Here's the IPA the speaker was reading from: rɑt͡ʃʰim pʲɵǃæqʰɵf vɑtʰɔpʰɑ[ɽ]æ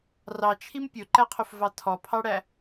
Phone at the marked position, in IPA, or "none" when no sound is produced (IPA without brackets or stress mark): ɽ